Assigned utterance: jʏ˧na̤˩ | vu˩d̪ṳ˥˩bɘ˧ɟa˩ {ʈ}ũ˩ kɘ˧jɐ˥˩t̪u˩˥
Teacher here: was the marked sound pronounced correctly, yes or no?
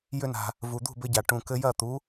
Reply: yes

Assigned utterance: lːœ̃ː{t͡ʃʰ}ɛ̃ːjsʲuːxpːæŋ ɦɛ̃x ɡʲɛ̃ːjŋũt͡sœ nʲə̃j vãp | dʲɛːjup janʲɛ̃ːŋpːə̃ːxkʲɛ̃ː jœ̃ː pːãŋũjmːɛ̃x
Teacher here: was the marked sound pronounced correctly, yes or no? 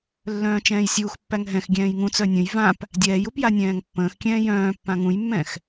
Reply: no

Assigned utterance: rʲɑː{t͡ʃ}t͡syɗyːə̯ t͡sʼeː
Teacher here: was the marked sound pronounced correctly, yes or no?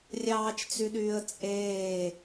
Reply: yes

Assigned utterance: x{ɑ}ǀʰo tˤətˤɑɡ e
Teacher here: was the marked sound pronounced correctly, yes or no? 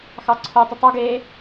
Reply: yes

